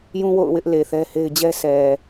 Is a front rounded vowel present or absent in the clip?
absent